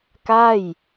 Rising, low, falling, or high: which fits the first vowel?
falling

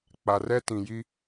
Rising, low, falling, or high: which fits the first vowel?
low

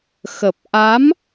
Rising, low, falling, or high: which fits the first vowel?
low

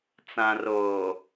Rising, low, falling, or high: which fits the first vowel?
low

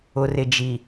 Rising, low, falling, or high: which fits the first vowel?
low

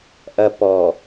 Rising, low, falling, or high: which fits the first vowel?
low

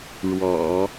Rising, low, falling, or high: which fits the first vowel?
low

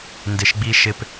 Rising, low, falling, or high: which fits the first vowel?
low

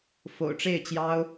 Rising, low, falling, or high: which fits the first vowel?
low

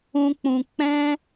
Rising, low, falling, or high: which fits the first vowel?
high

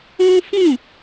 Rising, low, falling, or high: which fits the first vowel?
high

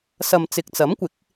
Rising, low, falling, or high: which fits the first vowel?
low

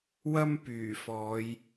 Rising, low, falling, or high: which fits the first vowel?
high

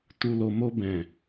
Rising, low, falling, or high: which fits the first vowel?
low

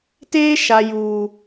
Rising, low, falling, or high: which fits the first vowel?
high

